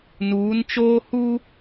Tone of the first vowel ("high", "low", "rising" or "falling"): rising